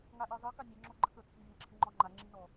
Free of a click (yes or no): no